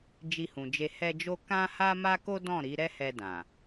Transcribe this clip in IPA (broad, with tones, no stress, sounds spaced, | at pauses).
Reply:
d͡ʒ i˧ h ũ˨ d͡ʒ e˧ h ɛ˧ d͡ʒ o˧ k ã˦ h a˦ m a˦ k o˦ d ɔ̃˦˨ ɾ i˨˦ ɾ ɛ˦ h ɛ˧ d ã˨